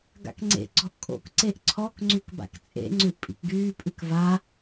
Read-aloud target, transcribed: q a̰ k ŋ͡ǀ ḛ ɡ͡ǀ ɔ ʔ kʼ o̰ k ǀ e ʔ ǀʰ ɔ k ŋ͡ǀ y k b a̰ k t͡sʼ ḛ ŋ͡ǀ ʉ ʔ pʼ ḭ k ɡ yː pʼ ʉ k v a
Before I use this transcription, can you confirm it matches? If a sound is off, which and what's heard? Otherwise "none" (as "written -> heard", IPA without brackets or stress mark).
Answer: q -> ɡ